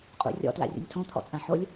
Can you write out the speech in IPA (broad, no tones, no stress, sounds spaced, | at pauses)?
qʼ ṵ rʲ ɔ̰ t l a̰ rʲ ṵ nʲ tʰ õ t̪ʰ ɔ̰ t͡sʼ ã ħ o lʲ